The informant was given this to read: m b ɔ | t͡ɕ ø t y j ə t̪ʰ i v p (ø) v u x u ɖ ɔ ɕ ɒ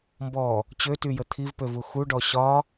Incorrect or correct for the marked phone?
correct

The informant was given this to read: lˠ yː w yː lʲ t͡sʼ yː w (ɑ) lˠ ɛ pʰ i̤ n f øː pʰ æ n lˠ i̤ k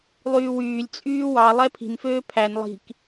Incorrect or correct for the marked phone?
correct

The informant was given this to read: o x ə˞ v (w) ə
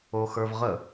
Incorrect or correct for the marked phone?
incorrect: ʁ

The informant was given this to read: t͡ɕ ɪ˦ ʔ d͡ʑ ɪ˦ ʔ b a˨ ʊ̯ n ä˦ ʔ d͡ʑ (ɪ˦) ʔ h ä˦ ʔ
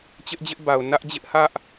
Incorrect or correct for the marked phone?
correct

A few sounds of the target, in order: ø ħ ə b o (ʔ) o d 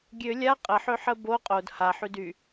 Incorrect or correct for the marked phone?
incorrect: qʼ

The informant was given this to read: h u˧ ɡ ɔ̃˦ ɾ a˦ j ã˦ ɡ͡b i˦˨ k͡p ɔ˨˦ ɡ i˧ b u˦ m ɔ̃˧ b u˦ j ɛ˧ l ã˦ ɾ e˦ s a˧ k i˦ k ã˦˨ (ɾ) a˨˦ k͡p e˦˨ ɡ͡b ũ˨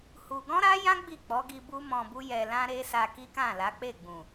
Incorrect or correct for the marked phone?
incorrect: l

